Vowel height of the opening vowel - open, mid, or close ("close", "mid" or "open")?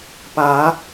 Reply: open